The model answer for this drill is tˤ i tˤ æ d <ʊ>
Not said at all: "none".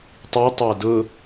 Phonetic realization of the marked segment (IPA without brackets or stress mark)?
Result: ʊ